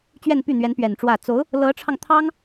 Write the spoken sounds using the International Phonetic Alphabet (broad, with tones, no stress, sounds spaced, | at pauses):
t͡ɕ ɥ ɛ˥˧ n p y˥˩ n̪ ɥ ɛ˧˥ n p ɥ ɛ˨˩ n ʈ͡ʂ w ä˥˩ t͡s o˧˥ ʊ̯ | l ɤ˧˥ ʈ͡ʂʰ ɑ˧ ŋ t̪ʰ ɑ˥ ŋ